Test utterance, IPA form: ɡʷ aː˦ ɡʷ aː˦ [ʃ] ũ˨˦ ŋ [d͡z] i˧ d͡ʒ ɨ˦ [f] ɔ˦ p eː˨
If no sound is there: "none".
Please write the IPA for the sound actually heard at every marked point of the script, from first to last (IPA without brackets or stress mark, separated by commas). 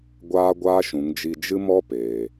ʃ, d͡ʒ, m